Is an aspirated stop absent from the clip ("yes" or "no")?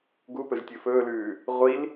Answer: yes